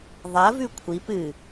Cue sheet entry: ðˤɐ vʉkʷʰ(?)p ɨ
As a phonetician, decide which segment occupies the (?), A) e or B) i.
B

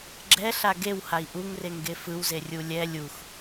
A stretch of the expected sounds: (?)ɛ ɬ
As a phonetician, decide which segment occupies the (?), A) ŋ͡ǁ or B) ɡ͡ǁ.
B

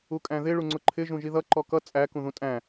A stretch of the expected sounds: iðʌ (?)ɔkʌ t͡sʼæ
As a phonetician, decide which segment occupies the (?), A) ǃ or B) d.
A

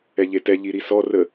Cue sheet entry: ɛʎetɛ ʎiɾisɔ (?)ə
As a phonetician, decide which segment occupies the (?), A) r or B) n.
A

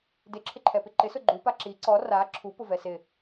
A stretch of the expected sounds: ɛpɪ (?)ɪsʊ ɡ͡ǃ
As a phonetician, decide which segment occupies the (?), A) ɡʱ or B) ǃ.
B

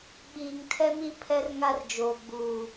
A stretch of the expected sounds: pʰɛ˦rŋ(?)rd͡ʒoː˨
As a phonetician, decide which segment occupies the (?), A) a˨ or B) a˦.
B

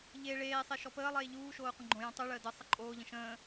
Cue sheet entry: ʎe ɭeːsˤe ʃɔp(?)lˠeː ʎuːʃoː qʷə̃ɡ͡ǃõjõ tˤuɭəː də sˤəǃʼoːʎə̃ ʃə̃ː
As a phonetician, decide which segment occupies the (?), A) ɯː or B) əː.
B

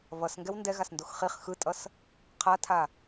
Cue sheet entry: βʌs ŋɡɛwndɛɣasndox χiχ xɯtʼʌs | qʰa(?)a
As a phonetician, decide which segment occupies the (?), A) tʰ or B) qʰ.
A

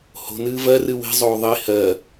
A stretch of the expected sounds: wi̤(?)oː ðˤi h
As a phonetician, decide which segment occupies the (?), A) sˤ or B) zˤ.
B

